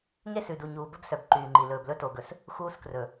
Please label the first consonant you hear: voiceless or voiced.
voiced